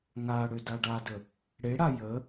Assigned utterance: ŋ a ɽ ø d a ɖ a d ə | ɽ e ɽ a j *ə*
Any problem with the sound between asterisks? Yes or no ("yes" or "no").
no